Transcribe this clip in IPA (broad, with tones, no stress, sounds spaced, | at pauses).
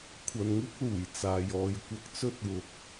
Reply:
kʷʰ ɐ˨ n ŋ ɪ˥ k̚ l uː˨˩ j t͡s aː˨ j ɔː˨ j kʷ ɐ˧ k̚ t͡s ɵ˥ t̚ w ʊ˨ k̚